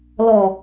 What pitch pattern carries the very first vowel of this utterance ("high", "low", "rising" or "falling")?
low